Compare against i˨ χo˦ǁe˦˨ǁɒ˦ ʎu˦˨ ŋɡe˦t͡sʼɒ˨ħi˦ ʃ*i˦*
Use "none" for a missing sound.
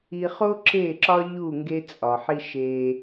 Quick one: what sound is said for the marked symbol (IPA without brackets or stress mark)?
e˦